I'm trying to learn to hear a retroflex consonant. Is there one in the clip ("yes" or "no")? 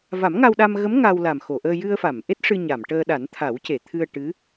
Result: yes